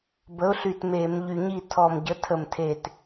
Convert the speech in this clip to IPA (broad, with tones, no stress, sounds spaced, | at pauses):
b ə˨˥ ʊ̯ ɬ y˧˩ t m e˧˩˧ m ʎ y˧˩ ɲ i˥˨ tʰ ɔ˧˩ m ɟ ə˨˥ tʰ ə˧˩ m tʰ e˧˩ t